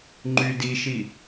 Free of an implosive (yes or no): yes